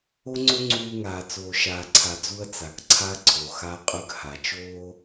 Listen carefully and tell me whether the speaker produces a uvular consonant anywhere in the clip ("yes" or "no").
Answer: yes